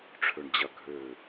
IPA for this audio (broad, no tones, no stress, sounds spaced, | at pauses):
ʈ͡ʂʰ ø ɳ d͡ʑ ɐ ɡʱ ø